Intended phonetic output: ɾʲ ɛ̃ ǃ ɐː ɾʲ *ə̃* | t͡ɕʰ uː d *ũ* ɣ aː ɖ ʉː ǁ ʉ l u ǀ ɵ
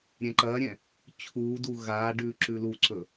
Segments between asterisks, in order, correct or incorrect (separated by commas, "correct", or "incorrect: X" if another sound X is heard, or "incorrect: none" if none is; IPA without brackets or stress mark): incorrect: ɛ̃, incorrect: u